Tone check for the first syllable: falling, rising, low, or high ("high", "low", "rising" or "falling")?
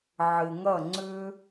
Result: low